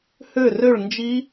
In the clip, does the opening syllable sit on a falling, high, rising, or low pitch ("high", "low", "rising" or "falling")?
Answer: falling